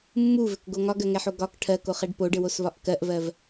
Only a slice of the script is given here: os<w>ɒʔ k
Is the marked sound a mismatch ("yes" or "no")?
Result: yes